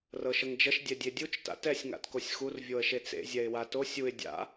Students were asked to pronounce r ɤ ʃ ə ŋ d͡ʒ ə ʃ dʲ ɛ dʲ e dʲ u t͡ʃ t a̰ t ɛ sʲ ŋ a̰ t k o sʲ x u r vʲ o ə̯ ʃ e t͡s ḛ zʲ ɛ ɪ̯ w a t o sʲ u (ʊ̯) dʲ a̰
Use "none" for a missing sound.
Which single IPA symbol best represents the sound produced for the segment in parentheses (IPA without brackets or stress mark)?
ɪ̯